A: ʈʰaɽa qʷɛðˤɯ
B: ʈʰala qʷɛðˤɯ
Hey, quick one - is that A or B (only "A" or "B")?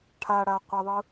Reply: A